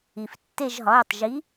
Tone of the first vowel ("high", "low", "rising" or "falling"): low